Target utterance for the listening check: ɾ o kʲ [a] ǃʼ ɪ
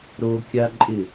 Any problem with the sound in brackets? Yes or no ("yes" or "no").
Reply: no